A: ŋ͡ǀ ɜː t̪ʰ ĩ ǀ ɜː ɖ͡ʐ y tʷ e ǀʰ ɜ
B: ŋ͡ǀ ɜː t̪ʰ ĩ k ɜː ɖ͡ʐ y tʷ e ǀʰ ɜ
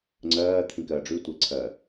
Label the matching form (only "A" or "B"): B